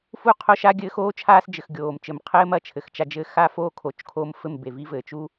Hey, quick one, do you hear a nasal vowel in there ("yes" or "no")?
no